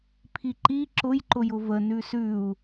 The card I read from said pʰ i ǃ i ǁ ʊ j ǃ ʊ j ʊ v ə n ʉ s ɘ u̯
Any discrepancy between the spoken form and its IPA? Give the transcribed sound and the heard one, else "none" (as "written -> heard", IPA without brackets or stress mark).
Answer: ɘ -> ʉ